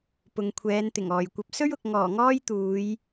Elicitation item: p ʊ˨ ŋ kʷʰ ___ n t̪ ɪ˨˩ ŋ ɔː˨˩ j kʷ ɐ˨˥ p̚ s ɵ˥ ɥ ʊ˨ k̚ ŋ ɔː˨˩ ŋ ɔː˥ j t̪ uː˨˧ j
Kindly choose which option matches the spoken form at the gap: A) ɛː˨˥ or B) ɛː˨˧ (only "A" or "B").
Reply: B